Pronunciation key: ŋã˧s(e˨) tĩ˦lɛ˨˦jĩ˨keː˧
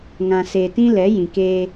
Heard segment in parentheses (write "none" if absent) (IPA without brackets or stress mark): e˧